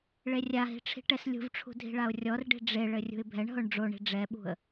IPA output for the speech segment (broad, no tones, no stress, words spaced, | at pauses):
ɭerʲaɦi̤ ʈ͡ʂʰi̤ʈɛslʲṳvʈ͡ʂʰṳ dʱi̤ɭaʊ̯rʲɔrɖi̤ ɖ͡ʐeɭɘ rʲṳɪ̯bʱɛɳɦoɳ ɖ͡ʐoɳi̤ ɖ͡ʐɛɓṳə̯